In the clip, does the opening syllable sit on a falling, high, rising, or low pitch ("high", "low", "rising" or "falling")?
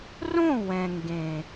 falling